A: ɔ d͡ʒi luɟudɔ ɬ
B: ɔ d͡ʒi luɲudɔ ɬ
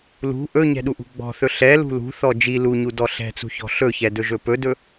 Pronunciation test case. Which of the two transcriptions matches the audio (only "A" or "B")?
B